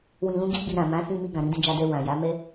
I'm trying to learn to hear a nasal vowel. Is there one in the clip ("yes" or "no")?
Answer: yes